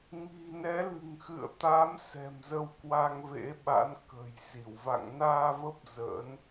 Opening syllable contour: low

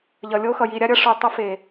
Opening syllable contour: low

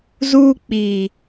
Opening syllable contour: high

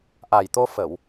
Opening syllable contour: low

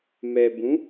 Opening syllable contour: low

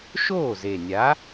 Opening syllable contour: falling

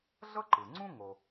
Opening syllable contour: high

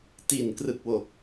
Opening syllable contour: low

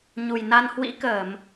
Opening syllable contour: low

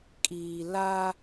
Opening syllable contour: low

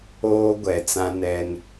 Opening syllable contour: high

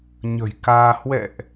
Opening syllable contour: low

